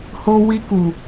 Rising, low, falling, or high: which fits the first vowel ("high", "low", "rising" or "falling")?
high